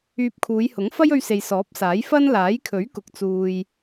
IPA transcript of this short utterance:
yː˧ p̚ kʰ uː˨˧ j h ʊ˨˥ ŋ f ɐ˥ j ɵ˧ ɥ s e˨ j s ɔː˨˥ p̚ s aː˨˥ j f ɐ˥ n l aː˨˥ j kʰ ɵ˨˥ ɥ k ʊ˨ k̚ t͡s uː˨ j

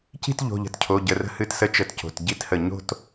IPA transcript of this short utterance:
c i̤˥˧ t ʎ o̤˩˧˩ ʎ ə̤˧˩ t cʰ o˩˧˩ ɟ ə˩˧˩ r ə̤˧ h ɨ˧˩ t s ə˧ t͡ʃ ə˧˩ t c o̤˩˧˩ t ɟ i˥˧ t h ə˧˩ ɲ o̤˥˧ t

